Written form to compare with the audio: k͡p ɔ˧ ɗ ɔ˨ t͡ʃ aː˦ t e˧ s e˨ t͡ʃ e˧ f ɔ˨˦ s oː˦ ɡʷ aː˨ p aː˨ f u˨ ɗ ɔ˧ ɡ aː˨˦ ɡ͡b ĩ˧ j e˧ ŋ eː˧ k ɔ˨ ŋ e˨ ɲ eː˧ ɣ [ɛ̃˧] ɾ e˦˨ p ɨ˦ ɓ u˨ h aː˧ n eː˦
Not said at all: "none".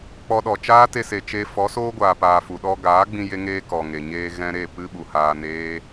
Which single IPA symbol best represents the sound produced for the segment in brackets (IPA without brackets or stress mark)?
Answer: ɛ̃˧